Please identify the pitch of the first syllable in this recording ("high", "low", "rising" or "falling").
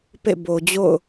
falling